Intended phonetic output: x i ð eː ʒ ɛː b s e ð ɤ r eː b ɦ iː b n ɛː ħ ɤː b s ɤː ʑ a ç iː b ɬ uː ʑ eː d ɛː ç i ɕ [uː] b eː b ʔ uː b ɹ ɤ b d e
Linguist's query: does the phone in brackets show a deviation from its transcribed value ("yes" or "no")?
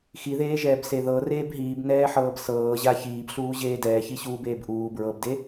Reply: no